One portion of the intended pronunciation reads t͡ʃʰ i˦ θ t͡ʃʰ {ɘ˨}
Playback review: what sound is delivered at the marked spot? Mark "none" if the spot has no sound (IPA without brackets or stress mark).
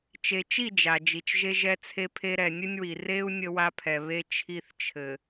ɘ˨